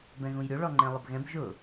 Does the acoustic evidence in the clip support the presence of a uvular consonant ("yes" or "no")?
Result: no